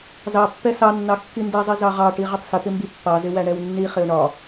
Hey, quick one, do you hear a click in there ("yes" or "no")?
no